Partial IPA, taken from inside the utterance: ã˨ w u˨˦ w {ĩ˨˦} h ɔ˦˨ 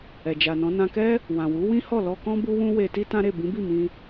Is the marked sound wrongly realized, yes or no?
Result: yes